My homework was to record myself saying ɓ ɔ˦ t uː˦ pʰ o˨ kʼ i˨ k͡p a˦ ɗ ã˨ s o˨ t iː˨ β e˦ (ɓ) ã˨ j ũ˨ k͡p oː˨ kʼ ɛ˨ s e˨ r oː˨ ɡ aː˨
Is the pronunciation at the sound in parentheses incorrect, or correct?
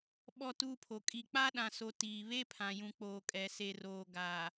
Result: incorrect